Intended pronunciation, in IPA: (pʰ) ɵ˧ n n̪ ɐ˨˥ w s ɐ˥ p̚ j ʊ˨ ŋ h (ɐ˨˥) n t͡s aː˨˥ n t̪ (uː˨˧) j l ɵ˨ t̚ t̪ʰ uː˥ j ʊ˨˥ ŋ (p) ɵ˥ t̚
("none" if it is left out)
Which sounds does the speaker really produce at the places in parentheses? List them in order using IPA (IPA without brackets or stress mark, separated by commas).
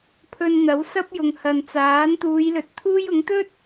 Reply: pʰ, ɐ˨, uː˨˧, t̪